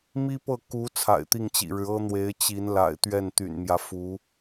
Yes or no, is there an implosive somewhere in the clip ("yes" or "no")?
no